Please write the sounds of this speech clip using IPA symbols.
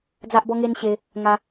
d͡z a˦ ʔ b ɔ˦ ŋ e˦ n ɕ e˧ | ŋ a˧

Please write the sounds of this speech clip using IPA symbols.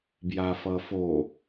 b j a f ʌ f o

